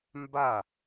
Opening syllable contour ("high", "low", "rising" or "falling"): falling